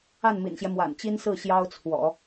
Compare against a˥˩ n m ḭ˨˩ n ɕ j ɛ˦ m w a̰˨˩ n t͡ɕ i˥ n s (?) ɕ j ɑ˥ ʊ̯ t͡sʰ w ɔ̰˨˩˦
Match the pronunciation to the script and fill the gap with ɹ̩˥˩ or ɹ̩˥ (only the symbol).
ɹ̩˥˩